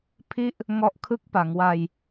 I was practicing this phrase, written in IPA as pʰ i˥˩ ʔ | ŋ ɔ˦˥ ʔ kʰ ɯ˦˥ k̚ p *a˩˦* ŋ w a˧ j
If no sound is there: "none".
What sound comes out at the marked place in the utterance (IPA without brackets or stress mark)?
a˩˦